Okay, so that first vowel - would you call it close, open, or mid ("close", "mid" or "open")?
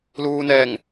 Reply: close